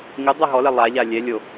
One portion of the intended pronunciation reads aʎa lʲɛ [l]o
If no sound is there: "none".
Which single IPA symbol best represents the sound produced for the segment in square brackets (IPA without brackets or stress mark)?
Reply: lʲ